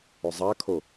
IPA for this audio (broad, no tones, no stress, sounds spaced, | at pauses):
ʊ zˤ a kʰ o